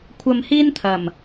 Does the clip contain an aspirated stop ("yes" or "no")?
yes